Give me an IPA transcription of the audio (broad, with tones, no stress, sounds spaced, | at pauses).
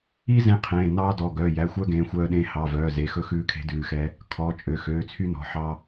i˥ z ẽ˥ qʰ ẽː˩˧˩ n ɑː˥ d ɔ˩˧˩ ɡ œ˩˧˩ j æ˩˧˩ xʷ œ˥ ɡ ẽː˩˧˩ xʷ œː˥ ɗ ẽː˥ h ɑ˩˧˩ v œː˩˧˩ z e˩˧˩ x ɵ˥ x ʉː˥ kʰ e̤˥ d ʉː˩˧˩ x ɛ˥ | kʰ ɔː˩˧˩ t͡ʃʼ ø˩˧˩ x øː˩˧˩ t͡sʰ y˥ n ɔ̤˩˧˩ ħ ɑ˥